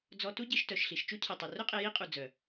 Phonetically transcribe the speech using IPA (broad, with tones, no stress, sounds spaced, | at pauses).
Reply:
d͡z ɔ˧ t u˦ ɟ i˧ ʃ t œ˨ ʃ ɬ i˨ ʃ t͡ʃ u˦ cʰ i˨ tˤ ɵ˨ r ɵ˦ qʼ e˧ j i˦ qʼ u˨ d͡z œ˨